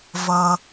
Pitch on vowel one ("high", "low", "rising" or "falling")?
high